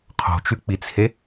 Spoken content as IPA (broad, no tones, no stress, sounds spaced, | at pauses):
qʰ o̤ t͡ʃ ʉ k͡p i t͡sʰ e